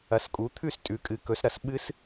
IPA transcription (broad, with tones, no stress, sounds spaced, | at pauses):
ɐ˨˦ s kʼ u˨˦ t̪ʰ ʉ˥˨ s tʼ ʉ˨˦ kʼ ɨ˨˦ k ɵ˨˦ s ɾ ɐ˨˦ s ɓ ɨ˦˥ s